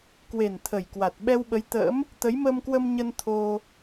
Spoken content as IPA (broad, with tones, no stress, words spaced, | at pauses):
kwe˨˩n t̪ʰə˨˩jkwa˨˩t̚ ɓɛ˧wɓə˨˦jt̪ə̰ː˧˥m | t̪ə˨˦jməː˧mkwə˧mɲə˧n t̪ʰo˧